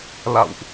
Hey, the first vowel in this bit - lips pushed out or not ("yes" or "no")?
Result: no